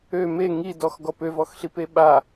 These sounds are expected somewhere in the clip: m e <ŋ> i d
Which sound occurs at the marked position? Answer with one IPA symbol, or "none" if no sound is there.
ŋ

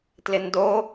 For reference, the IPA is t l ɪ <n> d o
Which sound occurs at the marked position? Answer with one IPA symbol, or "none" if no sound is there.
n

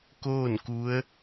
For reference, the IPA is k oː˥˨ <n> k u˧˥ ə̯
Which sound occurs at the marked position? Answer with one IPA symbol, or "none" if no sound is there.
n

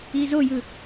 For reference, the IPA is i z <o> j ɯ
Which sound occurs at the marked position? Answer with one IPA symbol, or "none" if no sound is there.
o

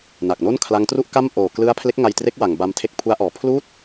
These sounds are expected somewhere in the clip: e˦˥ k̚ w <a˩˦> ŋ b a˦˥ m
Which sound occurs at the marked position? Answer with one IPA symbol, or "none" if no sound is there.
a˩˦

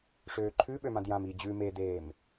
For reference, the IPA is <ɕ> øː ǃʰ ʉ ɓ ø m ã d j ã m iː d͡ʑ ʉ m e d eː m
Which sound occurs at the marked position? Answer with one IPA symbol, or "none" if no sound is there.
ʂ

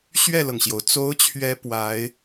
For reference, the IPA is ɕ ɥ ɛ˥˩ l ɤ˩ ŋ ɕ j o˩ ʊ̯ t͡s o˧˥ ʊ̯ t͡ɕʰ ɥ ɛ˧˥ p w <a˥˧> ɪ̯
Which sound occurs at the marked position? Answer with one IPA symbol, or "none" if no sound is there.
a˧˥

